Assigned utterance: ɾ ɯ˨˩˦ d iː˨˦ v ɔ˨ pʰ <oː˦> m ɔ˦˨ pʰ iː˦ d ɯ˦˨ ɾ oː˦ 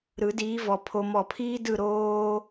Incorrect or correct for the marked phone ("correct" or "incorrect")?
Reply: incorrect